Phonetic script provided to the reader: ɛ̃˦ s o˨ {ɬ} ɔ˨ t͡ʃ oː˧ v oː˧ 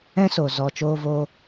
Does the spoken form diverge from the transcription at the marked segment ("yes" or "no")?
yes